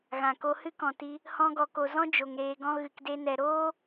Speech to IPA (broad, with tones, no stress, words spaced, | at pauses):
ɣã˨ko˧ hɨ˦kɔ̃˨ti˧ | hɔ̃˦ɡɔ˧ko˧ zɔ̃˦ d͡ʒo˧ŋ ɾeː˧ɡɔ̃˦ ɣɨ˧kde˦ nɛ˧ ɾoː˦